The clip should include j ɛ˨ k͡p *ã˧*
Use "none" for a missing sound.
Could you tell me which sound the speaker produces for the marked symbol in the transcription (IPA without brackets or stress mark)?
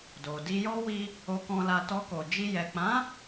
ã˨˦